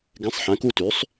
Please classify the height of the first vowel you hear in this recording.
mid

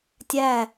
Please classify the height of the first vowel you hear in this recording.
low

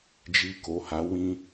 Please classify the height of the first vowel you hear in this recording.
high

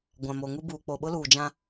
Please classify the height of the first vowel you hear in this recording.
low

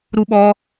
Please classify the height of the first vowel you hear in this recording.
high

